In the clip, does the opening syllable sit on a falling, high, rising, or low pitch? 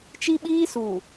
high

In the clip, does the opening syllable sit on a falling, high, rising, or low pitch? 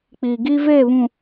low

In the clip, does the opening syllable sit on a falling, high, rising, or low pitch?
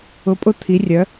rising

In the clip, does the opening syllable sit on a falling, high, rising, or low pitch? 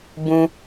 high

